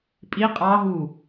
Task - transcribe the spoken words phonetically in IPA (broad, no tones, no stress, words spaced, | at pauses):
pʼi qʼɑɦu